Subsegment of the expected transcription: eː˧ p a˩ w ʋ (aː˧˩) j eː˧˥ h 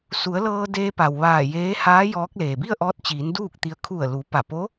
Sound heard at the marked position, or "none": aː˧˩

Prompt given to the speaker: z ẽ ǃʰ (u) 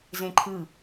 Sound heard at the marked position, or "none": ɯ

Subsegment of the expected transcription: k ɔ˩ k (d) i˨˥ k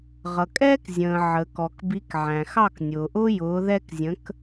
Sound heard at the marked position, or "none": b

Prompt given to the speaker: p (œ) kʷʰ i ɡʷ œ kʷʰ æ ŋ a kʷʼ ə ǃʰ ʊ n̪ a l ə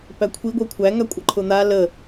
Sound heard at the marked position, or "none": æ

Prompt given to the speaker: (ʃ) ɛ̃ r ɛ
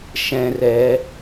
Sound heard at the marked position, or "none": ʃ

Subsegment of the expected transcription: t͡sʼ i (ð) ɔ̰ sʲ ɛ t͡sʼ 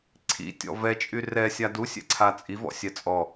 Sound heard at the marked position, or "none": v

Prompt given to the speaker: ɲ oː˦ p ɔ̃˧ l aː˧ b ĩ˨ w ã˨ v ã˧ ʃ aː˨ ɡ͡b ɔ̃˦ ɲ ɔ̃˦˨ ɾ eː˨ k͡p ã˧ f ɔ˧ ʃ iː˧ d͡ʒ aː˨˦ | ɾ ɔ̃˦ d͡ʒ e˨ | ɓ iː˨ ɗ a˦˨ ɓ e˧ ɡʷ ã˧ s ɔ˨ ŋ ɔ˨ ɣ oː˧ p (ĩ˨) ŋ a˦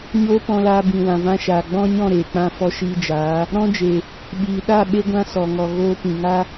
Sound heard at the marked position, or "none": ĩ˨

